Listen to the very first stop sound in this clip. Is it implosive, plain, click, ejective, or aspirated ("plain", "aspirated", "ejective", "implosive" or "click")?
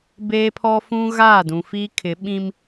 plain